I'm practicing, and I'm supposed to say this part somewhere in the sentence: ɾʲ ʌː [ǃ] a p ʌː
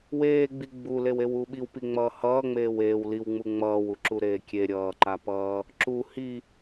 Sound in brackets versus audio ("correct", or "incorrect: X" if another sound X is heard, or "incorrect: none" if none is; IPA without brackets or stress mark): correct